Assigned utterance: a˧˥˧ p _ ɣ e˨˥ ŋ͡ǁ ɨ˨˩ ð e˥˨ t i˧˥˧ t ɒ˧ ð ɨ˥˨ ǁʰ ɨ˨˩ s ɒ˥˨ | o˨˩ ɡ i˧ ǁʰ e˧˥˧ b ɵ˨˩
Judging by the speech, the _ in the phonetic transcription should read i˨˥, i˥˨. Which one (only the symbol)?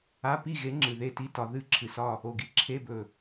i˥˨